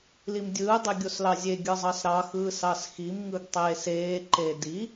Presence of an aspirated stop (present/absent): absent